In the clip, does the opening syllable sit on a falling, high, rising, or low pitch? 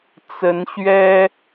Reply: rising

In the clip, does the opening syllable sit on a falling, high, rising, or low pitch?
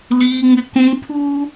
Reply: high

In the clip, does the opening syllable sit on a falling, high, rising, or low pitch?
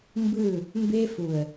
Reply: falling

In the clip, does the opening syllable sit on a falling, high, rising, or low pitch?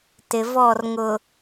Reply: low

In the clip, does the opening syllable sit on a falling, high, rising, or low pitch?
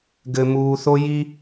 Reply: low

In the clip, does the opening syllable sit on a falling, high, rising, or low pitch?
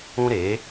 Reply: high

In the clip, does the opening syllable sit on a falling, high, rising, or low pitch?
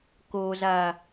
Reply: low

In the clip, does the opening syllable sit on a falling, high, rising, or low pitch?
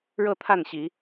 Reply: falling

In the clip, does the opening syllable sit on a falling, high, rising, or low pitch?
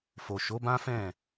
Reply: low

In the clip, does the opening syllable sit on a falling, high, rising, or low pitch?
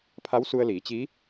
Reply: rising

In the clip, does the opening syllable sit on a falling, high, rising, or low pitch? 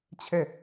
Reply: falling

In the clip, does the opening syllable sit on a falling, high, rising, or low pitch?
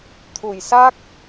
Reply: low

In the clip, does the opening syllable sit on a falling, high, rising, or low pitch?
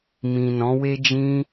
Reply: low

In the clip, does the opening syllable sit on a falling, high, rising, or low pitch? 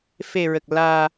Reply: low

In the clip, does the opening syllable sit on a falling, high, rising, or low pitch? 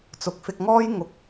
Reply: rising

